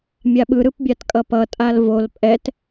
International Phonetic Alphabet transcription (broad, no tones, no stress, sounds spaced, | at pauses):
mʲ a ɓ ɯ ɾ ɯ p bʲ a t kʼ ʌ p ʌ tʼ a l v o l pʼ ɛ t